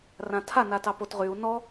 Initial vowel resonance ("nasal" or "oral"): nasal